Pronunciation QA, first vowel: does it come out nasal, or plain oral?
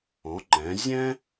nasal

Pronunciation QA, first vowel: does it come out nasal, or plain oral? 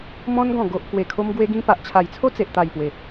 nasal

